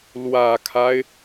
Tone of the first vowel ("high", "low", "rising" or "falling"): low